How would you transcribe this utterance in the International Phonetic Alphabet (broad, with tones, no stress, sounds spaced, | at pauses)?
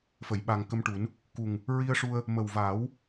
f ə˨˩˨ j ɓ a˨˩ ŋ k ə˧ m ʈ u˨˩˦ n | k u˨˩ ŋ | ɹ i˧ ə̯ ʂ u˧ ə̯ | m ə˨˩ w v aː˨˩˦ w